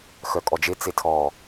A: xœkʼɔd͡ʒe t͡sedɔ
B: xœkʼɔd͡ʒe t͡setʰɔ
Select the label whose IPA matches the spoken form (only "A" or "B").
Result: B